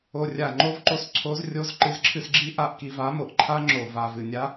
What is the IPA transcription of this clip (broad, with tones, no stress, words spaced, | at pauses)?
o˧rʲa˧˩ ŋ͡ǃo˧˥vǃo˧s ǀʰo˧˥zrʲo˧˥z ǃɨ˧zǁʰɨ˧sɡ͡ǁi˧˥ ʔa˧˥ʔki˧va˧˥ mo˧ʔǃʰa˧˥ ŋ͡ǁo˧˩ va˧˩vɨ˧˩ nʲa˧˥